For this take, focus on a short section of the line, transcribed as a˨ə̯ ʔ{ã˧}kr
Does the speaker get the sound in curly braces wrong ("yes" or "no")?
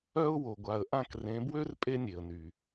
yes